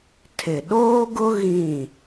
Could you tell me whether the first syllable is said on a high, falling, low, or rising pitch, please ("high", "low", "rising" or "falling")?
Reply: low